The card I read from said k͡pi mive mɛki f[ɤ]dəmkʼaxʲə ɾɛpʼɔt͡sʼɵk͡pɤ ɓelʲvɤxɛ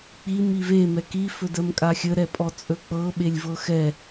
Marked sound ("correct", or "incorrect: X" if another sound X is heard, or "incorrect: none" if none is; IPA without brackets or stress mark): incorrect: ɵ